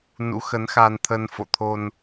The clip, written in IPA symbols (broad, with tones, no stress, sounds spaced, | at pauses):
n ṵ˧˥ x ə˨˦ n x a˧ n t̪ʰ ə˧ n f o̰˧˨ t̪ʰ o˧ n